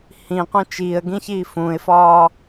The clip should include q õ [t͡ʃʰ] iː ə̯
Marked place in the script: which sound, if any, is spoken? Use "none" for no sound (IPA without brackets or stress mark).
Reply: t͡ʃ